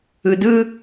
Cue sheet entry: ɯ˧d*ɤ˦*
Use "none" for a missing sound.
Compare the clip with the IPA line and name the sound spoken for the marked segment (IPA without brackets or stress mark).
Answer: ɯ˦